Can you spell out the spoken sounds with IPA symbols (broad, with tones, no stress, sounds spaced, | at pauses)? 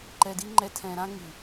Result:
ǃ ɛ˧ d i˦ ŋ͡ǃ ɛ˧ tʰ ɛ̃˧ ɾ ã˦ ŋ i˨